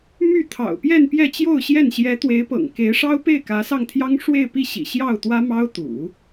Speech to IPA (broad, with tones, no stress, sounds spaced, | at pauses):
m y˥˩ t̪ʰ ɑ̰˨˩ ʊ̯ p j ɛ˥˧ n p j ɛ˥˧ t͡ɕ j o˥˧ ʊ̯ ɕ j ɛ˥˩ n ɕ j ɛ˧˥ t̪ w e˧˥ ɪ̯ p ɤ̰˨˩ ŋ k e˧˥ ɪ̯ ʂ ɑ˥ ʊ̯ p e˥˩ ɪ̯ k ä˧˥ s ɑ˥˩ ŋ t̪ʰ j ɑ˥ ŋ ʂ w e˥˧ ɪ̯ p i˥˩ ɕ ḭ˨˩ ɕ j ɑ˥˩ ʊ̯ t̪ w ä˥ m ɑ˥ ʊ̯ t̪ ṵ˨˩˦